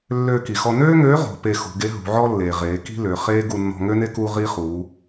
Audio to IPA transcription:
lːøː˧ki˩xɔ˧ nøː˥ŋøː˧˥ ʁo̤˩˧pe˧ xṳ˩˧ɡe˧˥ ɦṳ˩˧ʕɔ˥lːeː˩ ʁeː˩˧ki̤˥lø˩˧ χeː˥ ɡu˧nːɔ̤˧ŋø˥ne˥ kuː˥ʁiː˥ χuː˩˧

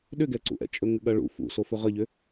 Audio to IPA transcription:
ɗʏɡɛǀṵʔɛ̰ t͡ʃʼɵŋɘɠɐɭṵ fṵ sofɵʁəʎʏ

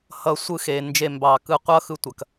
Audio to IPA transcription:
hʌ˧ sʷɯ˦xe˨ nd͡ʒe˧mbɑ˨kɯ˦˨ qʷʌ˦xɯ˧ tʷɐ˨k

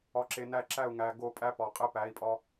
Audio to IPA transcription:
ɒ˨ǁe˨næ˦˨ǁæ˦˨u̯ ŋæ˨ɡo˦˨pʼæ˦pɒ˨ qʼe˦pæ˨˦i̯pʼɒ˦

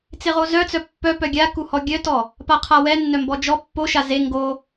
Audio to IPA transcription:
t͡seʁozœt͡sœ pːœpœ ɡʲa kuhɔɡʲœtɔ | paqʰawɛ nːœmbɔd͡ʒɔ pːoʃa ze ŋɡo

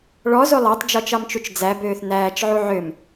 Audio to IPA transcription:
ɭɔzo lˠɑtˤd͡ʒɔt͡ʃɑmt͡ʃut͡ʃ d͡zæbøːθ næːt͡ʃʕu ʕøm

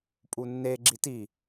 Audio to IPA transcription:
pʼunːe ɡ͡ǁiti

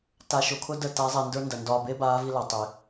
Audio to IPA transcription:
ta˨ ʃo˨kʰʊ˦də˦˨ ta˨˦ zˤi˨ndə˞˦ndɐ˨ ndɒː˨be˦ baː˦vi˦la˨ tˤi˨

